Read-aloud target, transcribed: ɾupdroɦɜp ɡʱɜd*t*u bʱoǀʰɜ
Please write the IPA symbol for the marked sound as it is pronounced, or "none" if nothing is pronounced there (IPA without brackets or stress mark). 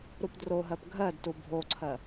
t